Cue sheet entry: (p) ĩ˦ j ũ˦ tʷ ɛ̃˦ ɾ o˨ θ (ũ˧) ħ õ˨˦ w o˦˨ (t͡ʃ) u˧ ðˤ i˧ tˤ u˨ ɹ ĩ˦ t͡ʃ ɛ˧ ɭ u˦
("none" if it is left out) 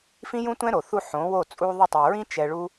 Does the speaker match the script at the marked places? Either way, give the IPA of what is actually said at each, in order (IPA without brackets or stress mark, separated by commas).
f, u˧, t͡sʼ